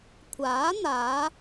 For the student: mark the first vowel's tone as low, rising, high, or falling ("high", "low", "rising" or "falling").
rising